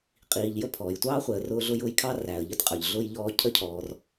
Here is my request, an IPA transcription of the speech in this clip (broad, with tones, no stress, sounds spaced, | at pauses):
qʼ iː˨ ʎ j ə˦ pʰ ɔː˩ j tʷ ɑː˥ χʷ ɛ˨ ə̯ r ʊː˦ ɮ ʊ˦ j ʊː˦ j kʰ ɑ˥ r æ˩ ə̯ ʎ ə˥ t qʼ ə˞˩ ʎ ɮ ʊː˥ j ʎ ɔː˦ cʰ ə˥ cʰ ɔː˨ r